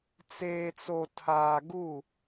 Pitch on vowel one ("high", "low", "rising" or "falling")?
low